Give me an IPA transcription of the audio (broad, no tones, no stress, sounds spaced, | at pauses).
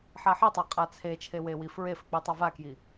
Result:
ħ a ħ i tˤ a qʼ a t͡sʰ e t͡ʃʰ e w e w i f ɹ e f ɘ k͡p i tˤ a v a k j i